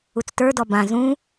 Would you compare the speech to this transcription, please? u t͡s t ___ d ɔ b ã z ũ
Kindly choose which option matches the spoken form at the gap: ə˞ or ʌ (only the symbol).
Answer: ə˞